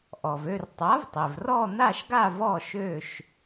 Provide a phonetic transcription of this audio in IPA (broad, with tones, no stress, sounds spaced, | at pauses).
ʔ ɔ˩ v ø˥˧ r tˤ a˩˥ v tˤ e˩ v r ɔ˥˧ n̪ a˥˧ ʃ ɡ a˥˧ v ɔ˥˧ ʃ ø˥˧ ʃ